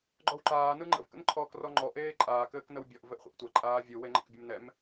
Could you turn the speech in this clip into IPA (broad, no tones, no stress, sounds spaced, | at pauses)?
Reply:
ɡ͡ǃ ɔ w ǃ aː n ɯ ŋ͡ǃ ə̰ v k ə̰ n ǃʰ ɔː k r ɔ ŋ͡ǃ ɔ ʔ eː ǃʼ aː k ɘː k n ə w bʲ ɔ ʔ v ɘ ʔ χʷ ɛ̰ ʔ tʷ ɐ ǃʼ aː vʲ ɯ w e ŋ͡ǃ ə̰ k bʲ ɘ m n ɛ m